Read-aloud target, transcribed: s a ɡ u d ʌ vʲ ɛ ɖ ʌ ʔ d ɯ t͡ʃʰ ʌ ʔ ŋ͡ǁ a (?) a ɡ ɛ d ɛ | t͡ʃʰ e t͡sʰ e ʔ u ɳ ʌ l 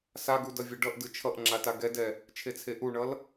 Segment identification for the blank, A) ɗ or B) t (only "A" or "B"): B